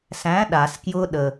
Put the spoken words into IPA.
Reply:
s æ̃ ɗ a s k j ʊ ɗ ə

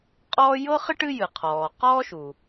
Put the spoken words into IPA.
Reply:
qʼ ɔː˥ j ɤ˥ χ ɪ˥ ʈ ɨ˥ j ɨ˩ qʰ ɔː˩ q ɔː˥ ʃ u˩

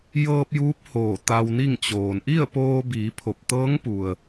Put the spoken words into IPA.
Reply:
j ɤː˧ p̚ j uː˧˥ p̚ h oː˧˩ t̪ a˧ w n i˥˨ ŋ t͡ɕ oː˩ n ʔ i˥˨ ə̯ p oː˧ b iː˩˧ pʰ o˧˩ p̚ t̪ ɤː˧˥ ŋ p u˩ ə̯

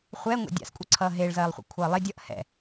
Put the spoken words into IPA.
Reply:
χʷ ɛ ŋʷ ɛ̰ dʲ a̰ s kʷʼ ʌ ǀʰ ʌː ɦ e ɭ z ɜː lˠ χʷ ḭ kʷʰ ʌː lˠ e dʲ ʌ ʔ h ɛ̰

